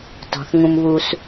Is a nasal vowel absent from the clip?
no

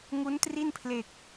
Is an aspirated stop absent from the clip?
no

